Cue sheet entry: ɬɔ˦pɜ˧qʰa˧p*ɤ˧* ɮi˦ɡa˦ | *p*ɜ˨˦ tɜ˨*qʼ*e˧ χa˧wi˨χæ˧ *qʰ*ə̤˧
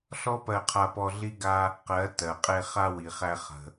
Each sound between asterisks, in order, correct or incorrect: incorrect: ɔ˧, incorrect: q, correct, incorrect: χ

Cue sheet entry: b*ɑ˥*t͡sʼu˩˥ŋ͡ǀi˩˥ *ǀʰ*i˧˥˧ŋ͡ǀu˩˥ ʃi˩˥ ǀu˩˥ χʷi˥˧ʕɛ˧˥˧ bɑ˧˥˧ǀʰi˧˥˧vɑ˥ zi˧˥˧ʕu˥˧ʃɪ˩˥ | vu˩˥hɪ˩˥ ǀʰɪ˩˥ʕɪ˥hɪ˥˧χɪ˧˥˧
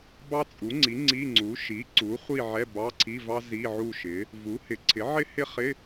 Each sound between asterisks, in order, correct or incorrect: correct, incorrect: ŋ͡ǀ

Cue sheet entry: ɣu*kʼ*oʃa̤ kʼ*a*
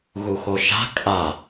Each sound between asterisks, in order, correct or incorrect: incorrect: x, correct

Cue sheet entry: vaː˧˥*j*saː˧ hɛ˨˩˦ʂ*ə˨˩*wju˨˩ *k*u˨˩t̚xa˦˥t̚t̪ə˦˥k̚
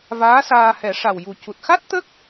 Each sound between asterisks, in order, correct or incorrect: incorrect: none, incorrect: a˨˩, incorrect: c

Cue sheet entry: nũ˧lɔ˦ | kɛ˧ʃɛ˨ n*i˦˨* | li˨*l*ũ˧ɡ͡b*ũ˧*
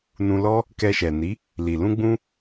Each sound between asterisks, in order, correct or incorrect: incorrect: i˨˦, correct, correct

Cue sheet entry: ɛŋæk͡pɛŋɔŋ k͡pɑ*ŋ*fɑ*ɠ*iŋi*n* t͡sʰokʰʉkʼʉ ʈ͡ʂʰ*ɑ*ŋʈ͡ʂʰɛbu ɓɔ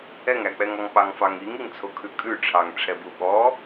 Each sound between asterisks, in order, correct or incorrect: correct, incorrect: ŋ, incorrect: ŋ, correct

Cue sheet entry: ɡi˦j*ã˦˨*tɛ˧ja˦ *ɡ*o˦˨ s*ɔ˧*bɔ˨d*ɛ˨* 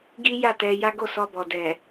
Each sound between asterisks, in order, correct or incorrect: incorrect: a˦˨, correct, correct, correct

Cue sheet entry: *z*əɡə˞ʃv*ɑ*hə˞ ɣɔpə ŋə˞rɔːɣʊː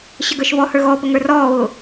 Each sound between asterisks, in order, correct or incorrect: incorrect: ɕ, incorrect: ɔ

